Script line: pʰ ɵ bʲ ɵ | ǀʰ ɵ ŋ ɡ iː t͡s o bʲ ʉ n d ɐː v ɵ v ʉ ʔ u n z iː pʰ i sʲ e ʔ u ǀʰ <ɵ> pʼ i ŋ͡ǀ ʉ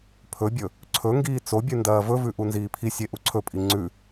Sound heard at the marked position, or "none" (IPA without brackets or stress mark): ɵ